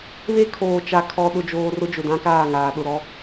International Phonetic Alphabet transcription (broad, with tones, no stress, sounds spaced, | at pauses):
β e˦ kʰ oː˨ t͡ʃ a˨ kʰ ɔ˨ ɗ ʊ˨ d͡ʒ oː˨ r ʊ˦ d͡ʒ ʊ˨ d ã˦ k aː˦˨ ŋ aː˨ ɗ ʊ˨ ɾ ɔ˦